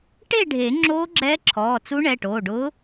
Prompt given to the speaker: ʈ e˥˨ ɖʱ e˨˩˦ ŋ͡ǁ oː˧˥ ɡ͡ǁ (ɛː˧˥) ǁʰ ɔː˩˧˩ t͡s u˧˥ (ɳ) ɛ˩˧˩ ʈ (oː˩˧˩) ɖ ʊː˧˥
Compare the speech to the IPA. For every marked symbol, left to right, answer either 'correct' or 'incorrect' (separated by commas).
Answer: correct, correct, correct